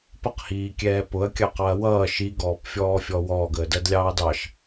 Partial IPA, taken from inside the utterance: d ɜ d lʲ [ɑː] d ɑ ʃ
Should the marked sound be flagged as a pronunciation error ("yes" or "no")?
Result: no